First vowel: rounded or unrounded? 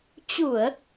rounded